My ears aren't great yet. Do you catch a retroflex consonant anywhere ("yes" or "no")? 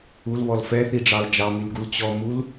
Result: yes